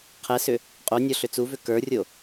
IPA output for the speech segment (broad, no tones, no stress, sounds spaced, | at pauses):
qʰ ɛ s ʏ | qʼ o nʲ ɔ ɬ ʏ t͡s u v ʏ k ə˞ rʲ o